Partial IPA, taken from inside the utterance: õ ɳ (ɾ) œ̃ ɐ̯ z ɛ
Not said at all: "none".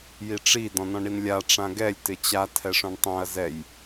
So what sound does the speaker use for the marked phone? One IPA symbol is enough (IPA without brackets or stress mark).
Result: tˤ